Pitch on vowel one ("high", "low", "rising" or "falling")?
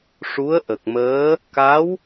rising